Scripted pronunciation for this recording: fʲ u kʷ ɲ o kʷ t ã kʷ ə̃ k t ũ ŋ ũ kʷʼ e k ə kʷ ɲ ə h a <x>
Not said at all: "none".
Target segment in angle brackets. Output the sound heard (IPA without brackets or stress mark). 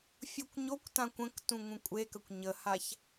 ç